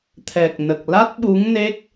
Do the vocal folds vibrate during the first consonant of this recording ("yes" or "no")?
no